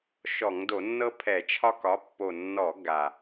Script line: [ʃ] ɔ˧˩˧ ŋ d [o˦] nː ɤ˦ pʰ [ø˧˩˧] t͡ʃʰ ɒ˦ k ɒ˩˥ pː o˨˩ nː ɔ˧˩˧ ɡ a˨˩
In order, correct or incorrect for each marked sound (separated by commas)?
correct, incorrect, incorrect